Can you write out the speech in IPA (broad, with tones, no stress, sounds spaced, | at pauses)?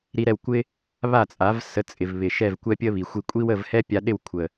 ɾ i˧ ɾ ɛ˥˩ w kʷ ɪ˥ | β a˥˩ t͡sʼ a˩˥ v s ə˩˥ t͡sʼ ɪ˩ v β ɪ˩ ʃ ɛ˥˩ v kʷ ɛ˥ pʲ ə˥ β i˩ xʷ i˧ kʷʼ i˥ w ə˥˩ v h ɛ˥ pʲ a˧ ɗ ɪ˥˩ w kʷʰ ə˩